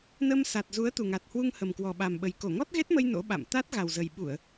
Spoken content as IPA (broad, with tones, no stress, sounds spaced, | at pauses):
n ə˧ m s a˨˩ t̚ z u˨˦ ə̯ t̪ u˨˩ ŋ a˨˩ t̚ h w u˧ ŋ h ə˨˩ m k w ɔ˨˩ ɓ a˨˩ m ɓ ə˨˩ j k o˧˩ ŋ ɔ˦˥ t̚ ɣ e˦˥ t̚ m ə˧ j n o̰˧˥ ɓ a̰˧˨ m t̪ a˦˥ t̚ ɣ a˨˩ w z ə˨˩ j ɓ u˧˩˨ ə̯